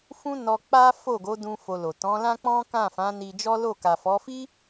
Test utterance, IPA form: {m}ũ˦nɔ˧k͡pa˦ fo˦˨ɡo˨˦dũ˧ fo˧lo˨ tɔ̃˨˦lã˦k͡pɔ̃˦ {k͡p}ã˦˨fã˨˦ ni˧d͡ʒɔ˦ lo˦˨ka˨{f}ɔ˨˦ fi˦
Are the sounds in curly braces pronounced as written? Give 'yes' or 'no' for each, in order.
no, no, yes

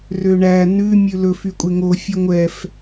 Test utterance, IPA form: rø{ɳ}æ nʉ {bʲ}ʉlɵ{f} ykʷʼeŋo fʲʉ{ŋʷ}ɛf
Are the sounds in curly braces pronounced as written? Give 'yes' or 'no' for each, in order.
yes, no, yes, yes

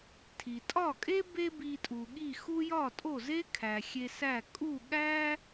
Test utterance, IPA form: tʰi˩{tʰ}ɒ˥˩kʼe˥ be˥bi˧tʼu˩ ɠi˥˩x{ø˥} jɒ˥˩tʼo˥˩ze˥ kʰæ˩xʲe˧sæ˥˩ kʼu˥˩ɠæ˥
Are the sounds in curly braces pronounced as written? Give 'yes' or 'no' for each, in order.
no, no

